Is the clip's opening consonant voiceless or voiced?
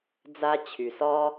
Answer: voiced